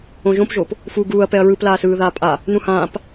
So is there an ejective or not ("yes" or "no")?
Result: yes